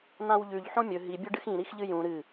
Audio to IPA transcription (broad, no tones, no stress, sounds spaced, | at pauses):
n̪ ã w ʎ ʉ ʎ ħ õ mʲ ɵ ɦ i bʲ ɵ ɖ ɨ x ĩ ɾ i x ʎ ɨ j ũ ɾ ɨ